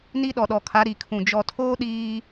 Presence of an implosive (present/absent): present